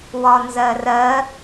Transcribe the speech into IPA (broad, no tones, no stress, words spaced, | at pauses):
wɒnzɜrɜ